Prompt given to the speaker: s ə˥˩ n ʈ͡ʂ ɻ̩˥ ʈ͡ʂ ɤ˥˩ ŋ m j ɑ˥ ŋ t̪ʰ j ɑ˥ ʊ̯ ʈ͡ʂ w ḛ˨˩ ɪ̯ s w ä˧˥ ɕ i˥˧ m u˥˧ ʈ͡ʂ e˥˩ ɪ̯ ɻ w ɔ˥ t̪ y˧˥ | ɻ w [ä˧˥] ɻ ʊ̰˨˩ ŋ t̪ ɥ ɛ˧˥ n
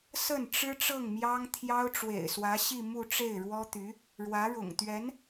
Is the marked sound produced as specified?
yes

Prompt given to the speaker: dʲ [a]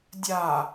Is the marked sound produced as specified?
no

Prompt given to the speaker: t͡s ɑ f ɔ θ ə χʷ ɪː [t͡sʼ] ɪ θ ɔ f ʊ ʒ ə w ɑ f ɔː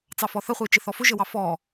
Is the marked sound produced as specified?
no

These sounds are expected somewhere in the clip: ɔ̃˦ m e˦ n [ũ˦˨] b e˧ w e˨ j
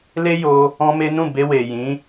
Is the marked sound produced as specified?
yes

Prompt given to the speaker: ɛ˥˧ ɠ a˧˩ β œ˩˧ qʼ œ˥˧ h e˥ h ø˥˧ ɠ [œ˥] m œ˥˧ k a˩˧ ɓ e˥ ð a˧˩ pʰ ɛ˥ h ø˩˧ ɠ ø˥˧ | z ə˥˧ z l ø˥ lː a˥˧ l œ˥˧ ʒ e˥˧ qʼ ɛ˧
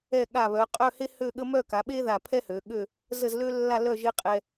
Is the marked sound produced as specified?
no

